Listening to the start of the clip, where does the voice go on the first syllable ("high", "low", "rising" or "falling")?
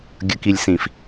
low